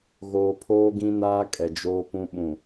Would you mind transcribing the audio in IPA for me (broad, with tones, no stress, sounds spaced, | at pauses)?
ɣ oː˨ pʰ oː˦ ɡ ĩ˦ n aː˦ kʼ ɛ˨ d͡ʒ oː˦ p ũ˦ ɓ ũ˨